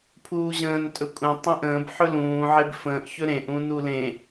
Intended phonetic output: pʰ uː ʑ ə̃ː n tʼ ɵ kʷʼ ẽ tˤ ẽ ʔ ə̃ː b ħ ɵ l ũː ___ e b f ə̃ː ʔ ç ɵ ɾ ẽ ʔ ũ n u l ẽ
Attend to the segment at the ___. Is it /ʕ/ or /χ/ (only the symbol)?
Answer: ʕ